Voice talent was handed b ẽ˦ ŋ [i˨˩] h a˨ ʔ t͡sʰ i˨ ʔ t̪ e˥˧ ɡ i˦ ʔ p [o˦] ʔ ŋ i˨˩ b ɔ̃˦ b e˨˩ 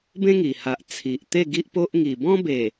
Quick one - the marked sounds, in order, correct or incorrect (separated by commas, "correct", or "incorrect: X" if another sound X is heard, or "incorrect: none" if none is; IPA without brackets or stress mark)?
correct, correct